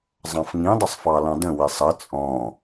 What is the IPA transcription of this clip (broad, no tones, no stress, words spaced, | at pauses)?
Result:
zˤɑ̃fŋĩdˤəsˤ fɑlɑ̃də̃ wɪsˤə t͡sʼɔ̃